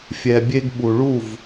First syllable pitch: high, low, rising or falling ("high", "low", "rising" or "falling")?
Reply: low